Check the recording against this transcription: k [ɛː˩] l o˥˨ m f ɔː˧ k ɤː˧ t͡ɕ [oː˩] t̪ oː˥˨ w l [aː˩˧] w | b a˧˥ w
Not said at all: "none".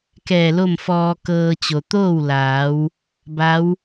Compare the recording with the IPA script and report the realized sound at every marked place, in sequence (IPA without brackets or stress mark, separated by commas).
ɛː˧˩, o˩, aː˩˧